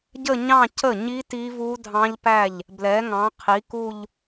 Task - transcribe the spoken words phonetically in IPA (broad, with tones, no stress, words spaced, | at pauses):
ɟə˥˧ɲɑ̃˥˧cə˥˩ɲi˦˥ ti˦˥vu˦˥dʱɑ̃˦˥ʎpæ˥˩ʎ | blɛ˨˥ŋɑ̃˨˥qʰi˨˥ku˥˧ʎ